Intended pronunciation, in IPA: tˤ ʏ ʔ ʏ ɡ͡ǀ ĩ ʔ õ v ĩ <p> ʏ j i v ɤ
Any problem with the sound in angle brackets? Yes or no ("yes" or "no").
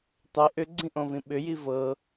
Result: yes